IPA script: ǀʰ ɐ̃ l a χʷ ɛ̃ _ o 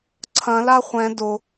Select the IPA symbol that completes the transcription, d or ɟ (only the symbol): d